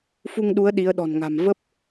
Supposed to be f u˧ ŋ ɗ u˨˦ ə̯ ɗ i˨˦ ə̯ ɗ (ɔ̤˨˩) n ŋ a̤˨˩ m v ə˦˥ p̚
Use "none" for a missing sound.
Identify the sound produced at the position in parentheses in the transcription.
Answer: ɔ̤˨˩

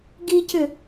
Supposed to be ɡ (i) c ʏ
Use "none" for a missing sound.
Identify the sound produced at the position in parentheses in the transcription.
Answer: i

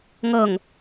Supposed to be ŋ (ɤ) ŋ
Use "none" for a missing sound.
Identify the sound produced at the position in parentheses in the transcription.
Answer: ɤ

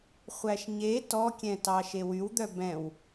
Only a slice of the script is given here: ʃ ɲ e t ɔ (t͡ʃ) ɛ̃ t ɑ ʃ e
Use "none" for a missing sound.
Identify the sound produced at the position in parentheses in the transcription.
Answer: kʲ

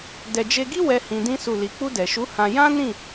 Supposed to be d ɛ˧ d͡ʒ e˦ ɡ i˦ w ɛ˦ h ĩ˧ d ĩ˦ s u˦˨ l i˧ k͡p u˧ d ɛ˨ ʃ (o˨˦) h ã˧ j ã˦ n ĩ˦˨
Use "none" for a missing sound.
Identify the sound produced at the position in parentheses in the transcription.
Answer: u˨˦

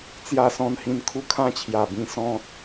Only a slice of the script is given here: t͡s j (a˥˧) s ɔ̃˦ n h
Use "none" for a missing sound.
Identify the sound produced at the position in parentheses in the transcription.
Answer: a˥˧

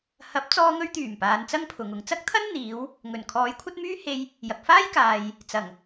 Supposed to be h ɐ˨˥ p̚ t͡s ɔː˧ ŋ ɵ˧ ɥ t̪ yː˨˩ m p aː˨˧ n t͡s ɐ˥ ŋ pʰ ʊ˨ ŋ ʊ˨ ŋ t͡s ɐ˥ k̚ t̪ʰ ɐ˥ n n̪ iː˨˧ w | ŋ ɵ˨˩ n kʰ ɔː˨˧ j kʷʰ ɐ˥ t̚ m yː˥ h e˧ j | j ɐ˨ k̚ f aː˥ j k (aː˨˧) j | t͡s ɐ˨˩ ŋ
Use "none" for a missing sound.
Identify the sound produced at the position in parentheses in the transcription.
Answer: aː˨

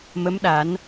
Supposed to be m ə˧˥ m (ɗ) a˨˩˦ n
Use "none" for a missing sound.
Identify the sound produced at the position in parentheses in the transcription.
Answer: ɗ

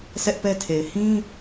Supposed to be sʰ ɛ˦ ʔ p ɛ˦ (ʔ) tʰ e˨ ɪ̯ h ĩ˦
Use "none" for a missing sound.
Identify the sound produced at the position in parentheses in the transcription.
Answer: none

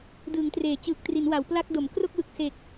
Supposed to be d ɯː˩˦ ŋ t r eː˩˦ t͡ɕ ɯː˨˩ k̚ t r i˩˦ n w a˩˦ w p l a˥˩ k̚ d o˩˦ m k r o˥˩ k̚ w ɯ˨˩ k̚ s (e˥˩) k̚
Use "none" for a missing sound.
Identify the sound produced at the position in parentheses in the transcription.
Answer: e˨˩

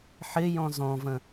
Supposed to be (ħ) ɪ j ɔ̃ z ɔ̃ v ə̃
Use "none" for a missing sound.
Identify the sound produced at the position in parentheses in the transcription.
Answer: ħ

